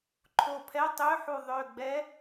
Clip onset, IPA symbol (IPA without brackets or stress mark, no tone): ǃʰ